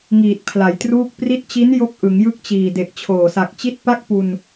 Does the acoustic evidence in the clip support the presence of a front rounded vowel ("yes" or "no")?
no